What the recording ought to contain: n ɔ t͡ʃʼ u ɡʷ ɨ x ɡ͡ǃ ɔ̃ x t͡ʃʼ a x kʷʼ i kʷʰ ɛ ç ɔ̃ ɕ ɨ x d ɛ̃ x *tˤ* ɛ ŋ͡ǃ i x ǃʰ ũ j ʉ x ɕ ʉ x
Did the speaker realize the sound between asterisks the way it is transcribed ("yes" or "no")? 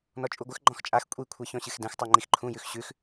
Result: yes